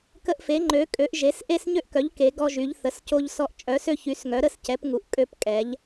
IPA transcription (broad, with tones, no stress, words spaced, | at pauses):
kə˧ʔfe˩˧ŋ͡ǃø˩˧kʼø˩˧ʔ ʒe˩˧s ʔe˧sɲø˧ʔkœ˩˧ʎ ke˩˧ɡɔ˧ʒy˩˧ʎ θə˩˧sco˧ʎsɔ˧ʔ t͡ʃʼœ˩˧sø˧çy˩˧s ŋœ˩˧ɾə˧scɛ˩˧p ŋu˩˧ʔkʼø˧p kʼɛ˩˧ʎ